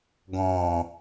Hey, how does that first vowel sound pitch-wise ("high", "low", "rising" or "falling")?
low